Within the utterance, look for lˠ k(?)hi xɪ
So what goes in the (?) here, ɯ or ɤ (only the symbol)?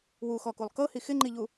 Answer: ɤ